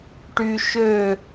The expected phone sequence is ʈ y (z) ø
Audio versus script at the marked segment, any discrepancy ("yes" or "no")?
yes